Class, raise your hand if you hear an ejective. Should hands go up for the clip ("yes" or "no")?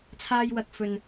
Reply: no